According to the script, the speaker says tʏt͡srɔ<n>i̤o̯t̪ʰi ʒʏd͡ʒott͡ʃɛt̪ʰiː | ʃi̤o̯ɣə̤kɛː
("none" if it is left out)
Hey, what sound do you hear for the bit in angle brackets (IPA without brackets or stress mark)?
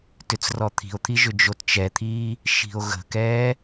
t̪ʰ